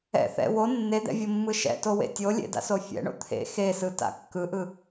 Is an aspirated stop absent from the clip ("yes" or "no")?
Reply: no